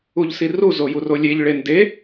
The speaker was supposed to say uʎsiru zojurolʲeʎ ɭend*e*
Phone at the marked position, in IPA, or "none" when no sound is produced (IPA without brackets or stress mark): e